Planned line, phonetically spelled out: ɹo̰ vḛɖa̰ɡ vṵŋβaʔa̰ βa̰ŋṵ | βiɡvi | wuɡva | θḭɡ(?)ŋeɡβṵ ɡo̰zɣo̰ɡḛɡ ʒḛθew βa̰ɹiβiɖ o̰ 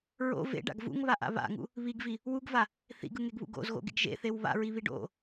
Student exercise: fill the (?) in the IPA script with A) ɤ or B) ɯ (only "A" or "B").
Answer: B